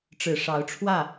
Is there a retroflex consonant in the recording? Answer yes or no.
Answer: yes